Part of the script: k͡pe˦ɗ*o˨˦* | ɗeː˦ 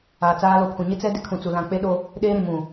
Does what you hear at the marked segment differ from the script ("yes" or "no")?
yes